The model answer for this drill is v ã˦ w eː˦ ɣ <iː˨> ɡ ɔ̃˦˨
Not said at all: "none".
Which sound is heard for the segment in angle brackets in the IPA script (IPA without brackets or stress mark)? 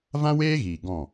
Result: iː˨